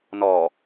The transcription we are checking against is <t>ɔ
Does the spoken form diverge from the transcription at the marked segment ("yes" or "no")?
yes